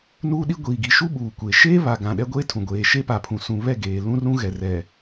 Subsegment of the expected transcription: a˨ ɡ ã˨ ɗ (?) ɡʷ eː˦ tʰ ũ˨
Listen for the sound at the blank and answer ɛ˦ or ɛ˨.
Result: ɛ˦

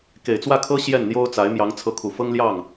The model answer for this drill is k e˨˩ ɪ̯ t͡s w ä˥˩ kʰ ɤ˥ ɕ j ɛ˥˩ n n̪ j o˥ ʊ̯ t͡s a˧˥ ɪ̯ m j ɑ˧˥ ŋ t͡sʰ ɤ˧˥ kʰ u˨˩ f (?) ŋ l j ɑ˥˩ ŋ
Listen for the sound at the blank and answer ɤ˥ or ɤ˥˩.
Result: ɤ˥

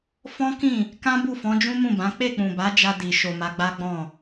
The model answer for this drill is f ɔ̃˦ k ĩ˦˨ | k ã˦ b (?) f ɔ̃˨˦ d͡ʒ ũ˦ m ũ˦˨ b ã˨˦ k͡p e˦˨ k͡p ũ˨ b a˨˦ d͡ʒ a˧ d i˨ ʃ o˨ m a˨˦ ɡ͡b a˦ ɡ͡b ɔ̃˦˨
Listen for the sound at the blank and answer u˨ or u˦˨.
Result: u˦˨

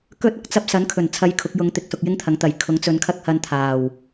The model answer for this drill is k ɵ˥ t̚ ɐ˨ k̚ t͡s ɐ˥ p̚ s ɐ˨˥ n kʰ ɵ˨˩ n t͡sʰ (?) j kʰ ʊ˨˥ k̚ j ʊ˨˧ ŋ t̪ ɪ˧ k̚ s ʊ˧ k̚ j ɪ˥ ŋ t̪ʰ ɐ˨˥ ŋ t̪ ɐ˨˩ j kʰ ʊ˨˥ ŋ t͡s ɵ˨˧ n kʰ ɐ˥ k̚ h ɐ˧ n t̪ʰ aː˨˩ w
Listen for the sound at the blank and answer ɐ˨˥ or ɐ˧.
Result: ɐ˧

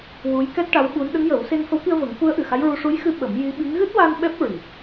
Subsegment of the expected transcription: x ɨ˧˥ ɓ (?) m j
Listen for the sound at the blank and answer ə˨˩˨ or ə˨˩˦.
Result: ə˨˩˦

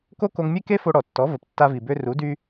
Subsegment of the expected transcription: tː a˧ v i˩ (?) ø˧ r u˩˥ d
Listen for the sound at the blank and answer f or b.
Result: b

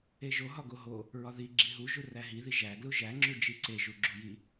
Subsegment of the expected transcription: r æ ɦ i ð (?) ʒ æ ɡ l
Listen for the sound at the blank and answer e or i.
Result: i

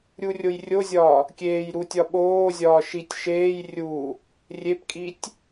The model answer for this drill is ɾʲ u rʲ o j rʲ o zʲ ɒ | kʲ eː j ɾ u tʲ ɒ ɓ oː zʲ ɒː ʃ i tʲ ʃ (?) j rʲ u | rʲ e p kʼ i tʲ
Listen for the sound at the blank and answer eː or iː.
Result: eː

